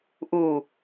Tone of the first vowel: low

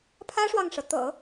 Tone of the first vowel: high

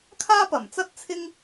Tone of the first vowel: high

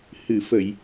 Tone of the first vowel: low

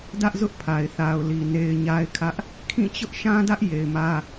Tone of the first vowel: high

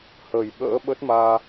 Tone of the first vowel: low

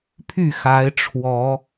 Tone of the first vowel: falling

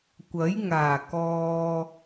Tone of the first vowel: rising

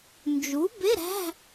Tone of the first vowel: rising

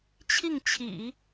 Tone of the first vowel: falling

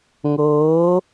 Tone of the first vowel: rising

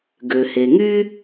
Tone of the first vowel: low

